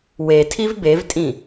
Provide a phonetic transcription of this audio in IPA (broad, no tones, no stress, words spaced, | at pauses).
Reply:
wetʰiv bevtʼĩ